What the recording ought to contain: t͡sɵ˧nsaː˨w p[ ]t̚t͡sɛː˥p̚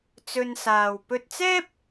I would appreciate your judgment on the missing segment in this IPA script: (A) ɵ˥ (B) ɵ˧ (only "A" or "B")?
B